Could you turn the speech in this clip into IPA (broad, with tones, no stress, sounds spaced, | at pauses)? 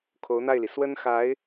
kʰ o˧˥ ʊ̯ n̪ a˥˩ ɪ̯ l i˩ s w ə˥ n x a˧˥ ɪ̯